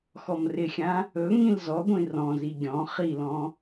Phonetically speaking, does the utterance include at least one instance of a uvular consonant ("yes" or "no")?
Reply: yes